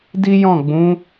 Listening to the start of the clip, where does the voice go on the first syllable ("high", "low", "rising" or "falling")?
high